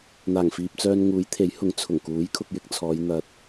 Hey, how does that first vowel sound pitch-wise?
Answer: low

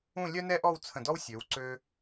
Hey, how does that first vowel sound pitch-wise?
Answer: falling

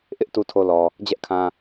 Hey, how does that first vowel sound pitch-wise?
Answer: high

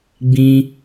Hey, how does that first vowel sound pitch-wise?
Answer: high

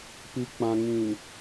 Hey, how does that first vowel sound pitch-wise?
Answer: low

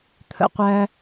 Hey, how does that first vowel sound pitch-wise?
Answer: falling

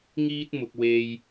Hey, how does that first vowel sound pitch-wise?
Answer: high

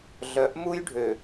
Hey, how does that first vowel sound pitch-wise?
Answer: rising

